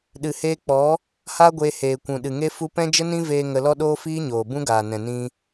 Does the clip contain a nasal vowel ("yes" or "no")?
yes